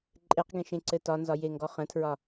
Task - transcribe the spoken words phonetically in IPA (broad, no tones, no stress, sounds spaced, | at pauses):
ǃʼ e q ɡ ẽ ʃ ẽ ǀ ɘ t ɒ n z ɒ j e ŋ ɡ ɔ χ ə̃ tʰ ɹ ɒ